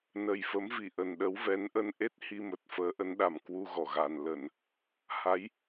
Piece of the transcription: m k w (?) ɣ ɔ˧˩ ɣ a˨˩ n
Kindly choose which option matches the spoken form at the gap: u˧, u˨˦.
u˧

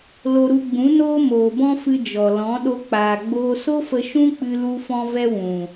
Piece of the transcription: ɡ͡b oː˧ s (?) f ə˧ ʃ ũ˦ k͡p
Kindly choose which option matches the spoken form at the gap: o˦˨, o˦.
o˦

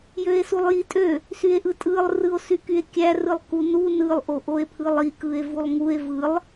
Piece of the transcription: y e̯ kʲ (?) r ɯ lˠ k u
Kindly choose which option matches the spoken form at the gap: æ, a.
æ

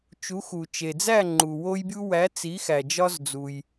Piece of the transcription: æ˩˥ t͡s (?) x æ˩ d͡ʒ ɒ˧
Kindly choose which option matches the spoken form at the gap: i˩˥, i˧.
i˩˥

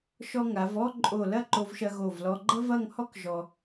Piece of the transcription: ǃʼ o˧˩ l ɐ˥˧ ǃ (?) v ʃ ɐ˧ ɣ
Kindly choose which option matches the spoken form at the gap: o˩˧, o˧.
o˧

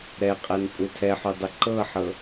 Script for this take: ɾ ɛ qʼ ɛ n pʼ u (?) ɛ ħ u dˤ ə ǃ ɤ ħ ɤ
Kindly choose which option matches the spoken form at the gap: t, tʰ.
tʰ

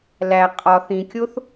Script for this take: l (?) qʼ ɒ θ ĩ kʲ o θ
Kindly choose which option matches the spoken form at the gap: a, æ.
æ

